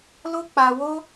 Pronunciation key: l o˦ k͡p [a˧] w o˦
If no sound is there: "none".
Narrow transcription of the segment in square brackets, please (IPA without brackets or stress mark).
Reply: a˧